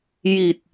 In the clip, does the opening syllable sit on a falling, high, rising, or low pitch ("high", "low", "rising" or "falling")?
low